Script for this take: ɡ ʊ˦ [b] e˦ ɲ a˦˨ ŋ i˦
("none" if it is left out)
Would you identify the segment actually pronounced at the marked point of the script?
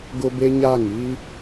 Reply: b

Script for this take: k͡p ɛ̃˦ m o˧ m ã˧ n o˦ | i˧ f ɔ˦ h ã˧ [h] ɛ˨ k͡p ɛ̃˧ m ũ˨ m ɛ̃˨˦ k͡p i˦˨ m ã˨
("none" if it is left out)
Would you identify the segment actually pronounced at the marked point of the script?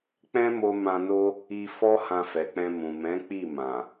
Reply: f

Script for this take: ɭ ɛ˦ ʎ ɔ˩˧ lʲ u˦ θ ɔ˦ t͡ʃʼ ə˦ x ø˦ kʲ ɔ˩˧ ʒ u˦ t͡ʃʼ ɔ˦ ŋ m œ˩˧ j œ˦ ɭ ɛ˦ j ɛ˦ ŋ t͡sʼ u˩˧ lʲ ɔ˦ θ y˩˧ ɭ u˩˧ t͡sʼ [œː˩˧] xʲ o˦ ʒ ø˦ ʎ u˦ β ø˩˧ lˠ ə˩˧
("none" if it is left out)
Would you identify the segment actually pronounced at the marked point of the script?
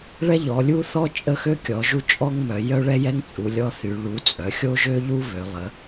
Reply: œ˩˧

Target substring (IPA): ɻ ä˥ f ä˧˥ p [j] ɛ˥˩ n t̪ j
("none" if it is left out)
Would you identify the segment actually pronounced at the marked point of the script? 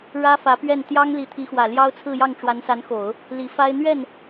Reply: ɥ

